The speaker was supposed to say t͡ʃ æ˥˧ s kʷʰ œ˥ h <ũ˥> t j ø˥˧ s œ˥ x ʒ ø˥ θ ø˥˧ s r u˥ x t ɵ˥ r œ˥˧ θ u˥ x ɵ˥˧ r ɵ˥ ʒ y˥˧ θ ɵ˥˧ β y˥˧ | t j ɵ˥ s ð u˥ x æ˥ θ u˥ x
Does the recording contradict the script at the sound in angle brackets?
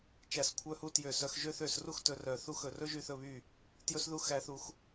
yes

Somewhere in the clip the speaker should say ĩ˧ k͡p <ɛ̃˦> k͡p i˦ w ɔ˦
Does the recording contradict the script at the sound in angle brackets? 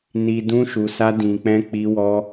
no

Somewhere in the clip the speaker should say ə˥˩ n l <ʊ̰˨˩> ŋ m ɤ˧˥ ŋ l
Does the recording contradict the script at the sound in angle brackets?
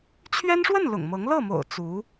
no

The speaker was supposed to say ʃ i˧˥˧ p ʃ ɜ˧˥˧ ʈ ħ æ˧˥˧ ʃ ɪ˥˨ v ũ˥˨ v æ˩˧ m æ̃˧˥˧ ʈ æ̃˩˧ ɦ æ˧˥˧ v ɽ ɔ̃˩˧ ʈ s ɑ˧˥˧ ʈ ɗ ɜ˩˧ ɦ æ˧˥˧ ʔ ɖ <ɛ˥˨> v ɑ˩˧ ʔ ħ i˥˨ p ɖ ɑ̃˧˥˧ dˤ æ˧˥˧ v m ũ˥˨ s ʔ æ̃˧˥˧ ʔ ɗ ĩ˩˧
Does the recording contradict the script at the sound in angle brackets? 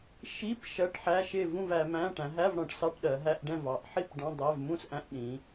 yes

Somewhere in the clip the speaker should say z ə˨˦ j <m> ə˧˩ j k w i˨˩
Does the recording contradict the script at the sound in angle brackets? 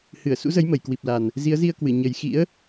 no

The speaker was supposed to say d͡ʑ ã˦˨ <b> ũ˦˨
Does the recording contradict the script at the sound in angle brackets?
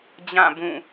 no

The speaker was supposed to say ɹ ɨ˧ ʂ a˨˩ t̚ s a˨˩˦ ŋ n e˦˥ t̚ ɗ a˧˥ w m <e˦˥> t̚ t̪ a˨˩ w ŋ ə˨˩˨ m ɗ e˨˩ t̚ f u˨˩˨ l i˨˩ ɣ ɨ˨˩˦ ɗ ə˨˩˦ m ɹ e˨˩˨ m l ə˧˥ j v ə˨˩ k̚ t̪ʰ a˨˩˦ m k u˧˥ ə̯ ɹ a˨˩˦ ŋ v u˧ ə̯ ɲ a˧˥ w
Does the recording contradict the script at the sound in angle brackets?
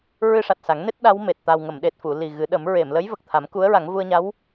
yes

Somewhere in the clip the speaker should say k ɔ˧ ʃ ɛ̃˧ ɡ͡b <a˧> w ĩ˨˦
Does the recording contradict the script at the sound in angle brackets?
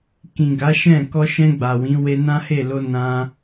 yes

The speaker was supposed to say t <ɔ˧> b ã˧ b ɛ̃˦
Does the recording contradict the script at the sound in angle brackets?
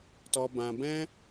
no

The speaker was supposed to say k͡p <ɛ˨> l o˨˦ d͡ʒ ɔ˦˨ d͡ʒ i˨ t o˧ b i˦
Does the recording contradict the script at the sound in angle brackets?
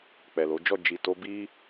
no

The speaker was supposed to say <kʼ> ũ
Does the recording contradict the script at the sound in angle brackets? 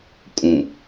no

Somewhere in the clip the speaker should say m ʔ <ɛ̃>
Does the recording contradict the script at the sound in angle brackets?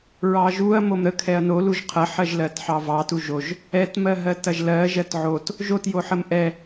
yes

